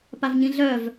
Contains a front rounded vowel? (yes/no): yes